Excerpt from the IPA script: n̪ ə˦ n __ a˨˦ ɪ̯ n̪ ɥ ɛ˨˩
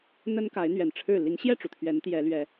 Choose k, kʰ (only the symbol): k